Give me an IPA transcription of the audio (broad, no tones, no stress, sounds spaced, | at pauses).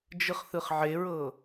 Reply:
d͡ʒ ɯ χ θ ɯ χ ʕ e ɹ ɤ